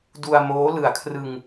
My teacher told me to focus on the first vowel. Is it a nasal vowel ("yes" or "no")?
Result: no